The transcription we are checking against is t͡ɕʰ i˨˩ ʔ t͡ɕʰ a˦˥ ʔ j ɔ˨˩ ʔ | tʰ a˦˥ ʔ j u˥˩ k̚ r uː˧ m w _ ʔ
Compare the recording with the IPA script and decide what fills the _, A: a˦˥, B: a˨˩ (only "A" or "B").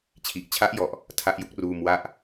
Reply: A